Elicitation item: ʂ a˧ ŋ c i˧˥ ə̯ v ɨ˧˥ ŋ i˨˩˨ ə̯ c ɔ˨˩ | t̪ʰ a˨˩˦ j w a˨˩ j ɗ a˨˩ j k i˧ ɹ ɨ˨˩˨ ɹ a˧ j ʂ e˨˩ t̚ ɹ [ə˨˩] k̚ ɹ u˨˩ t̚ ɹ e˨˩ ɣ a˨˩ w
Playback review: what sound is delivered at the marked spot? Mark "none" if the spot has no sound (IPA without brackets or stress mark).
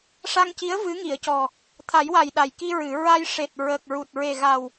ə˨˩